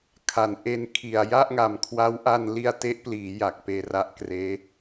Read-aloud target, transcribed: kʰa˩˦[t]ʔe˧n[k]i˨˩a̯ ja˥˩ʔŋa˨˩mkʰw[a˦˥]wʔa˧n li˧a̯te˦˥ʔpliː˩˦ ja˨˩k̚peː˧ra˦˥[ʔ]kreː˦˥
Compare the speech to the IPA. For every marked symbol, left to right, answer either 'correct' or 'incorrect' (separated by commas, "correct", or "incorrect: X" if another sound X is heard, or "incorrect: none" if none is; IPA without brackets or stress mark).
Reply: incorrect: n, incorrect: kʰ, correct, correct